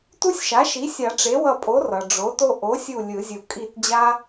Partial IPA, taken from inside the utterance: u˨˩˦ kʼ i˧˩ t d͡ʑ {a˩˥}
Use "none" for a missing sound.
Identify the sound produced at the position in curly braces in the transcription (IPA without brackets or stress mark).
a˦